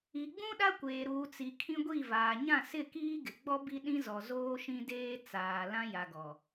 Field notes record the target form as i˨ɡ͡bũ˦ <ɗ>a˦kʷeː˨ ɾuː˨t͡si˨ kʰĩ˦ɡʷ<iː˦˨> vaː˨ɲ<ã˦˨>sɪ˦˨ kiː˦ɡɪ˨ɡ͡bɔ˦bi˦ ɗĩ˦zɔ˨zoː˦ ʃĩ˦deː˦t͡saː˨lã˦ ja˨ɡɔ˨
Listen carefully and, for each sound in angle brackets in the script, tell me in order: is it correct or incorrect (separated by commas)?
correct, incorrect, correct